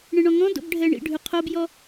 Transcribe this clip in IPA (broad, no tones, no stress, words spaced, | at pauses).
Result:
ɳẽɳɔ̃ŋɔ̃do̰b ɖʱɛɳḭɖʱʉ qʰobjɔ